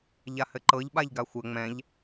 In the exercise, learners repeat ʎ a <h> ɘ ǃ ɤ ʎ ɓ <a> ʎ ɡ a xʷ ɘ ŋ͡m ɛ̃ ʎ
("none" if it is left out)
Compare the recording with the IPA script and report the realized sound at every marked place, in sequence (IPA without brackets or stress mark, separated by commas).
h, a